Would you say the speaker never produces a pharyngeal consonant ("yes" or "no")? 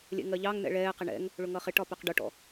yes